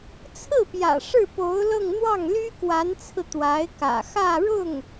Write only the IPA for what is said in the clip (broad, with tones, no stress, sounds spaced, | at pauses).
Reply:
t͡sʰ ɹ̩˥˩ p j ä̰˨˩ ʂ ɻ̩˥˩ p o˧˥ ʊ̯ l ɤ˥˧ ŋ n̪ w ɑ˥˩ ŋ l y˥ k w a˧˥ n t͡sʰ ɹ̩˧ t̪ w a˧˥ ɪ̯ k ä̰˨˩ x ä˥˧ ɻ ʊ˥˩ ŋ